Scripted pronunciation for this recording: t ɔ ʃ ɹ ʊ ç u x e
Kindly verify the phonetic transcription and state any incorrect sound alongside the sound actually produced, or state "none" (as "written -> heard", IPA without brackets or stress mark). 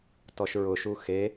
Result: ç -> ʃ